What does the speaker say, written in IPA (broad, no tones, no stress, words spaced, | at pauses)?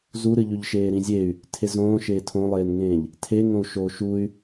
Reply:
zuɾɨʎʉʎʃeː ɾĩzʲey̯ | tʰezõːʃeː tʰõlˠeːnŋẽːʎ | tʰeŋõu̯ ʃoʃuy̯